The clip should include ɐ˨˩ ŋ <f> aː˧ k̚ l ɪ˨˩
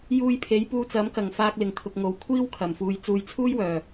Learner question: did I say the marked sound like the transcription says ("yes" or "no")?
yes